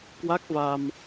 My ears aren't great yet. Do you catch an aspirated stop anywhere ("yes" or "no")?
no